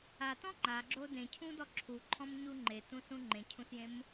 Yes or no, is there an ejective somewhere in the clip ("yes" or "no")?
no